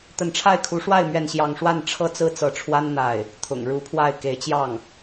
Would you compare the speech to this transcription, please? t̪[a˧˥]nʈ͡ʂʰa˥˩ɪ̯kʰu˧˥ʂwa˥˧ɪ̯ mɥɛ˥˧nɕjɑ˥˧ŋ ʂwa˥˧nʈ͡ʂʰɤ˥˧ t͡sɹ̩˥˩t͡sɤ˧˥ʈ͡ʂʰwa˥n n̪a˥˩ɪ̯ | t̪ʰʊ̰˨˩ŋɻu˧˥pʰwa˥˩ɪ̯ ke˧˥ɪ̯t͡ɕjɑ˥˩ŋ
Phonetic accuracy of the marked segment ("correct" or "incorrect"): incorrect